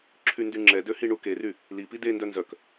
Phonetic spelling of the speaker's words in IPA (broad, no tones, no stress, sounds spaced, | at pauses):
ǁʰ y n d y ŋ͡ǁ ɛ d ø h i ɳ u k e r y | l i p i d e n d œ n z œ k